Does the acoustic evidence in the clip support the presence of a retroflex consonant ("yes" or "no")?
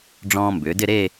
yes